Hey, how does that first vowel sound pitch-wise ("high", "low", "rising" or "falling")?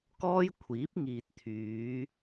high